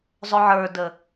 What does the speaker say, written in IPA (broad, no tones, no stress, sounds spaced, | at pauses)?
zˤ ʊ ʕ ə˞ d ə